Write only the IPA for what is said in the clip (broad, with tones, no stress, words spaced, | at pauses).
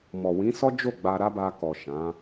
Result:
mɔ˨wĩ˨˦sɔ˦d͡ʒo˦˨ ɡ͡ba˧ ɾa˦ba˧kɔ˨ ʃã˨˦